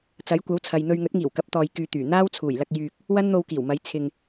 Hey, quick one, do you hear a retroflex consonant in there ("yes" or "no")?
no